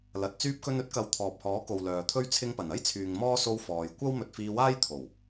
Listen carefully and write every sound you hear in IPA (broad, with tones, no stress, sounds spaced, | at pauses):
l ɐ˨ t̚ t͡s yː˧ p̚ k ɵ˧ n ɵ˥ t̚ k ɐ˨ w t̪ʰ ɔː˨ p̚ h ɔː˨˥ k o˨ w l œː˨ t̪ʰ ɵ˥ ɥ t͡sʰ ɪ˧ ŋ p ɐ˨˩ n ɐ˥ j t͡sʰ yː˨ ŋ m ɔː˥ s o˧ w f ɔː˨ j kʷ ɐ˥ w m ɵ˧ t̚ f iː˧ w aː˥ j t̪ʰ o˨˩ w